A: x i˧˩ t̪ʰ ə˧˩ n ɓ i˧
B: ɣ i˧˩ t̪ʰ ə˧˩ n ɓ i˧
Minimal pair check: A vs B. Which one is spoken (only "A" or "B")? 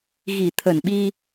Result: B